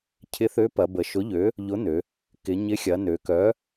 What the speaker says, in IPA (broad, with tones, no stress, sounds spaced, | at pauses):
cʰ ɪ˨˥ θ ø˨˥ p ɐ˩˧ b ə˩˧ ʃ ʊ˨˥ ʎ ø˨˥ | ʎ ʊ˨˥ n ø˩˧ | k ɪ˩˧ ɲ ɪ˨˥ xʲ ɐ˩˧ n ø˩˧ k œ˨˥